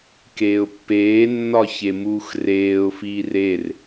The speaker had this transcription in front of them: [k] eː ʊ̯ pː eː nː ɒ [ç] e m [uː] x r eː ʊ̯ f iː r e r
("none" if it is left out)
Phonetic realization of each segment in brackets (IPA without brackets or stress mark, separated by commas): k, ç, uː